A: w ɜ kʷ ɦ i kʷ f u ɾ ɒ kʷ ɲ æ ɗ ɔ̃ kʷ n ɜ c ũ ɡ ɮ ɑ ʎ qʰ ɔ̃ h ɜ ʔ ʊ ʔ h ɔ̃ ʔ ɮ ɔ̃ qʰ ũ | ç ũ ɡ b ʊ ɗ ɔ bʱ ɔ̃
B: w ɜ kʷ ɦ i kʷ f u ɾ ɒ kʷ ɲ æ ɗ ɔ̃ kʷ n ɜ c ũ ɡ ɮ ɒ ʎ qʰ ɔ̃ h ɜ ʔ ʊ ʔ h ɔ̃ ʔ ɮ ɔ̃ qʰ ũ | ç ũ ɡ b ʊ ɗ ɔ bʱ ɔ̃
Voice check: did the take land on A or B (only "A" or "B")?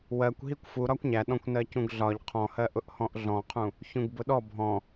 B